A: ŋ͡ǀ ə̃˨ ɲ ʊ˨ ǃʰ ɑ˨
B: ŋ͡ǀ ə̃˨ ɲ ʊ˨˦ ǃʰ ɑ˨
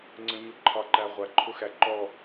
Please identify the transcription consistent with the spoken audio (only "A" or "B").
B